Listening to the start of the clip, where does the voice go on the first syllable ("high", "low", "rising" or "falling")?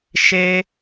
high